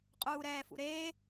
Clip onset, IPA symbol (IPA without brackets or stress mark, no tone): qʼ